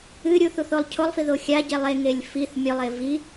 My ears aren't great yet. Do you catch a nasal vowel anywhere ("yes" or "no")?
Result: no